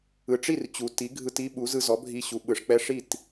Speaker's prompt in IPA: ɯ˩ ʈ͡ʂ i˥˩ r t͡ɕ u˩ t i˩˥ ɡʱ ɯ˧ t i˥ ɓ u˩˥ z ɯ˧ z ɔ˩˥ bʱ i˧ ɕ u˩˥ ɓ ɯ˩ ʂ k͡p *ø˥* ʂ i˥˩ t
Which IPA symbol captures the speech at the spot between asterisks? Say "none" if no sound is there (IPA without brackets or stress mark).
ɛ˥